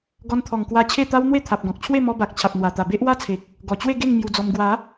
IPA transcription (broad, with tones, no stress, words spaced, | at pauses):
ɡɔ˧nt̪ʰɔ˨˩ŋkwa˧ t͡ɕʰe˥˧t̪a˦w n̪we˥˧t̪ʰa˨p̚ɡɔ̃˨k̚t͡ɕʰwe˥˧ mɔ˧ba˨k̚ t͡ɕʰa˨p̚n̪wa˨˩t̪a˨˩ be˦ʔwa˦t͡sʰe˨k̚ | ɡɔ˨˩t͡ɕwe˥˧ɡe˥˧ŋ mju˧d͡zɔ˧m ɡwa˨˦